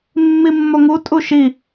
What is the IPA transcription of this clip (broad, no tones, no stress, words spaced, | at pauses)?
mːimːoŋu tʼuʃi